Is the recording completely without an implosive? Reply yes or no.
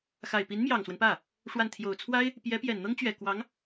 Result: yes